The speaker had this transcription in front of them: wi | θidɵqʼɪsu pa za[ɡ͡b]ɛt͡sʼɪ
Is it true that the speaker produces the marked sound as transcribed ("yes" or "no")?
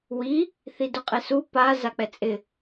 no